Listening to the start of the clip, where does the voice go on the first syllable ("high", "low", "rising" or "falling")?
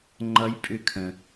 rising